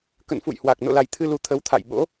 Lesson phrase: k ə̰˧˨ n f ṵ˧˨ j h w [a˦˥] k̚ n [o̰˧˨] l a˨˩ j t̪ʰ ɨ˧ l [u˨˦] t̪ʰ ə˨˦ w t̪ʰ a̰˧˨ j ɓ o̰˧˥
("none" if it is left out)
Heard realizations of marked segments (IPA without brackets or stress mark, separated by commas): a˨˩, o̰˧˨, u˨˦